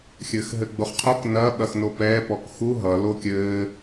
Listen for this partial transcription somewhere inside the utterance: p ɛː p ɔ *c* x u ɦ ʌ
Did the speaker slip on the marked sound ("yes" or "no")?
yes